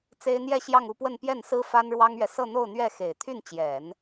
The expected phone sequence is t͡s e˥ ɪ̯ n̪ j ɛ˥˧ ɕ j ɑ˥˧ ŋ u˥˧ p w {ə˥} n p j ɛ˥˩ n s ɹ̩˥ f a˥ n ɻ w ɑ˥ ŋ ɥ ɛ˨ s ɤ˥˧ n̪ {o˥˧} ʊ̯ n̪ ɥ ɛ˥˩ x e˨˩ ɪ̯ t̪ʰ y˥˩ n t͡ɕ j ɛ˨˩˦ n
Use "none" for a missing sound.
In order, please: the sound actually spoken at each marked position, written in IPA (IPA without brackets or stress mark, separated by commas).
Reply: ə˥˧, o˥˧